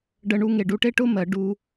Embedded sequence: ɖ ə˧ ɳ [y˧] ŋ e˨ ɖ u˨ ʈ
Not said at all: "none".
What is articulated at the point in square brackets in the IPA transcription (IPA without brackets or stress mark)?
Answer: u˧